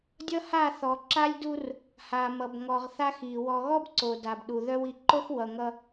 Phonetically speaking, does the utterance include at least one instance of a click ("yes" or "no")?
yes